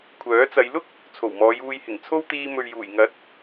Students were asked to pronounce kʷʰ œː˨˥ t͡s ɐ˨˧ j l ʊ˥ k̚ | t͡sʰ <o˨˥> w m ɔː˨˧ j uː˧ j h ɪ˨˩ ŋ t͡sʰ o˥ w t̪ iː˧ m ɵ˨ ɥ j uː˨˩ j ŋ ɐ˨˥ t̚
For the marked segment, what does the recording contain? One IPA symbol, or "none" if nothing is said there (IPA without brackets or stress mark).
o˨˩